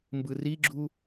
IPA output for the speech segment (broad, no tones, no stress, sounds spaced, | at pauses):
m b ɯ r i ɡ͡ǁ u